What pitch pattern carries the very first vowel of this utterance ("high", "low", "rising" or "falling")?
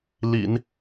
low